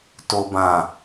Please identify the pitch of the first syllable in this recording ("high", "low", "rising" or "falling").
low